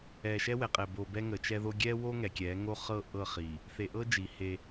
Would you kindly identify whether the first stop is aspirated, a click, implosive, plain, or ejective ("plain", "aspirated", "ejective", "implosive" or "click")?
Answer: ejective